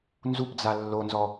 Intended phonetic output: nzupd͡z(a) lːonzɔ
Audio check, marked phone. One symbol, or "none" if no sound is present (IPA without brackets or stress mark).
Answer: a